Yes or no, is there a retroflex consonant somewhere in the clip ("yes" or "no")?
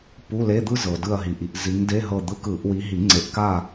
no